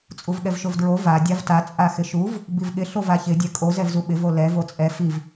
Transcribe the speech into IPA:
t͡sʼuvɠɛvʃovdɹo va dʲavta t͡sʼaxɪʃuv | bivɠɪ ɬovaçɪ dʲɛkʼo zɛvzuɓɪv olɛ vot͡sʼɛ fiv

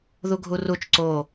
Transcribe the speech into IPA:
ðuɡʱurut͡ʃ ǀo

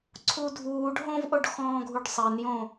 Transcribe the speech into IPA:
ǀʰudʱuːɖ ɦõvʔoɖxɔ̃ːɡʱuɖ sˤɪnjõ

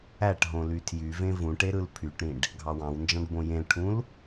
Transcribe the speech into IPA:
æʈɦõ lytʰjyvẽ vũʈe ɾɯlpʰyʈɾĩɖ | ɡʱɑwɑ̃wnd͡ʒɑ̃ɖ bõjẽlʈʰũl

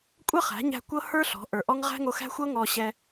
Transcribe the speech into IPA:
kʷʼɤ˦χæ̤˨˦ɲæ̤˧ kʷɤ˦hə˞˦ɬɔ̤˨˦ ʔə˞˨ʔɔ˦ŋ ʁæ̤˦ŋo˧xæ̤˦ xʷɤ˦ŋɔ˧ɕɛ˧

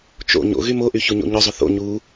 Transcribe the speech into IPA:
t͡ʃo̰ ɲo̰ɣy moʔy çuɲo̰ɲʊzˤʊ θo̰ ɲu

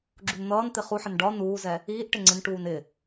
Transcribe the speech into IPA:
ɡ͡ǁunn̪ʌːnt̪ɪ χuħɪn ɖɒ nuːzɛ | iːʔ ʈɪŋ͡ǀɪnʈuːn ɪ

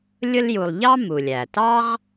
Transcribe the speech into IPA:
lʲʊ˦lju˨lˠʎɑ˥ mu˩lʲæ˩tɑ˥ʁ

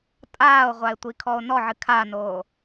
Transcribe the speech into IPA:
tʼaːo̯ʁʷae̯tʷikʰɔo̯ nɔʕɨ kʰanoː

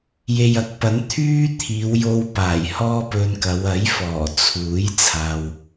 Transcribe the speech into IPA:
je˨jɐ˨˥k̚pɐ˨˥n t̪ʰyː˥t̪ʰiː˨˧wjo˧w paː˨˩jhɔː˥pɵ˧nkɐ˨˧w ɐ˨˥jfɔː˨˩t͡sʰuː˨˥j t͡sʰaː˧w

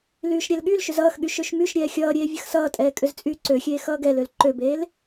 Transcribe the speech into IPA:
lyːʃɾʲɛlɠylʃʏz ʌːxɠy ʃøʃmyʃɾʲɛː xʲʌːɾʲeː vʲəxsʌːtʼɛː kʼʏzt͡sʼyːǀøxʲeː xʌːɡɛløl ǃøbeːl

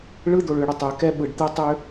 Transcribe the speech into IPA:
ɭɯ˦ d̪o˨ɭʏː˨ɽʏ˨ tˤʏː˨kɛ˦ ɓɯ˩ɖt̪ɛ˦ tˤʏ˥

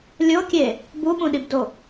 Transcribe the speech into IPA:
lʲokʲe | buɓũɗibdo

